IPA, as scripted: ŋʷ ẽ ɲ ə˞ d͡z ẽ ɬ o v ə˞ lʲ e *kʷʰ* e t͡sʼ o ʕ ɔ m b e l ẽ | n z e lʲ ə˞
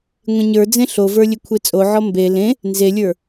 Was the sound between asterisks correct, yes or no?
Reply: yes